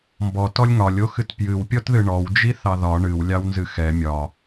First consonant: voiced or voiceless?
voiced